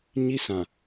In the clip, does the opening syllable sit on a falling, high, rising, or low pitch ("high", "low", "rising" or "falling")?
high